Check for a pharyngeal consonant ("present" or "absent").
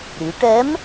absent